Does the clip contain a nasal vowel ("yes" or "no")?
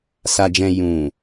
yes